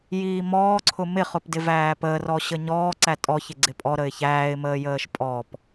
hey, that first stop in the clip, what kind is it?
click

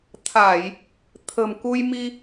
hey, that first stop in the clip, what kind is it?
aspirated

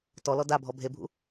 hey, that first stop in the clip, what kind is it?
plain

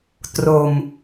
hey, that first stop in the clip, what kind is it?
plain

